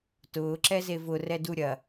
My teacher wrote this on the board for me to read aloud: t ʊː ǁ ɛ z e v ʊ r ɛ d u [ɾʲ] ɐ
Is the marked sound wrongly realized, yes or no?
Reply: no